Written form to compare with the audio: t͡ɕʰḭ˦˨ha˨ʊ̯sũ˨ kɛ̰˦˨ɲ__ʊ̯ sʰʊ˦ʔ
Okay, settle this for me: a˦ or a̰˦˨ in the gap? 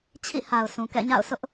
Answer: a̰˦˨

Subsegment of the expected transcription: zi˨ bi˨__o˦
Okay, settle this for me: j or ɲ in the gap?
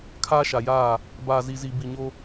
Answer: ɲ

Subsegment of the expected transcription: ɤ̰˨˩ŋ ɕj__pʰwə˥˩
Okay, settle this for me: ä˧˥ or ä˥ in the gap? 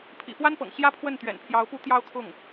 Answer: ä˥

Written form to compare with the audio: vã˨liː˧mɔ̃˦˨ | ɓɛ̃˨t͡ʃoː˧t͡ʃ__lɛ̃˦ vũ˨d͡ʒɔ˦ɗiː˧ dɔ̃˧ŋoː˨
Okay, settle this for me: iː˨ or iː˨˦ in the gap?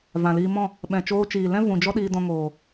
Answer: iː˨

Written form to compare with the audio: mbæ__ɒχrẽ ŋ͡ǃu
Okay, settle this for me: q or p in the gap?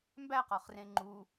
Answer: q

